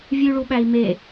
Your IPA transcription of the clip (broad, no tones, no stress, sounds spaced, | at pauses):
vʲ ʉ ɭ u ɓ æ i̯ m e